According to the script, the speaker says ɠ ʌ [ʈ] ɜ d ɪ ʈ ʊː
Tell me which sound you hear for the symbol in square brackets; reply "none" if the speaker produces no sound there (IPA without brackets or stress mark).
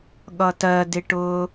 t